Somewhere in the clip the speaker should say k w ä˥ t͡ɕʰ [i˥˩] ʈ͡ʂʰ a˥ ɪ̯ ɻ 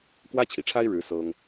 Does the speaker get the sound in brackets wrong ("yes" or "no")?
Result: yes